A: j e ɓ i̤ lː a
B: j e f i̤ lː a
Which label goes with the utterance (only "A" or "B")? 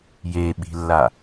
A